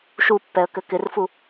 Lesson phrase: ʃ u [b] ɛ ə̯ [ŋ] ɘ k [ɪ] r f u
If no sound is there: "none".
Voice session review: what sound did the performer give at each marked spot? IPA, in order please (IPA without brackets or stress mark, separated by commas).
pː, k, ɪ